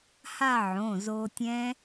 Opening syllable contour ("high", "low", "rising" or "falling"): falling